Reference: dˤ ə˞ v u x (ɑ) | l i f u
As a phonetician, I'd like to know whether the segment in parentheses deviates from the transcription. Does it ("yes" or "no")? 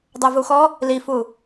yes